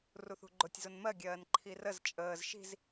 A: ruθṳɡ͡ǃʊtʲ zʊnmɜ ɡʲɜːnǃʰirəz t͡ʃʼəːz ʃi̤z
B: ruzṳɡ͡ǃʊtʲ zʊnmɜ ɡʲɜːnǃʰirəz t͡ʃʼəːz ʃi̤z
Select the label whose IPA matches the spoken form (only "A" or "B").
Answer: A